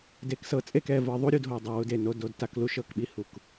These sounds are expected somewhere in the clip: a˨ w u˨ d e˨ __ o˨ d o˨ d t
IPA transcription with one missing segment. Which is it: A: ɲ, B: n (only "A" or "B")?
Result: B